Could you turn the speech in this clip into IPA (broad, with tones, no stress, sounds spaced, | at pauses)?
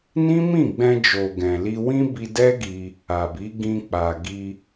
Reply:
n ĩ˦ m ĩ˦˨ ɡ͡b ɛ̃˧ d͡ʒ o˨ ɡ ɛ̃˨ l i˧ w ĩ˦ b i˧ d ɛ˦ ɡ i˧ | a˨ b i˨˦ ɡ ĩ˧ k͡p a˨ ɡ i˧